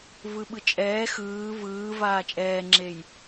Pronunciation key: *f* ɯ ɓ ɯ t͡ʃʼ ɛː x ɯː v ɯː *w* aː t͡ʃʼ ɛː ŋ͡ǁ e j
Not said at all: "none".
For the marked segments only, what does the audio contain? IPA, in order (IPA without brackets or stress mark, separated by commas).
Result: v, v